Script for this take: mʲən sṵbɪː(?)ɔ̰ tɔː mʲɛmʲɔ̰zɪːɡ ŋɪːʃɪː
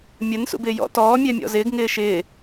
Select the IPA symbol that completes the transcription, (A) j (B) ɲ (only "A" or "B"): A